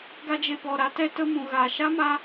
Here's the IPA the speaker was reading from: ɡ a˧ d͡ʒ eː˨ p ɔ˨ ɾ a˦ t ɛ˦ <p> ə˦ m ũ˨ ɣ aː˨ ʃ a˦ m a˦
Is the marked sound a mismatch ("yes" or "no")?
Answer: yes